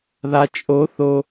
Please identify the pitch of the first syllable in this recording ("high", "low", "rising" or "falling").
low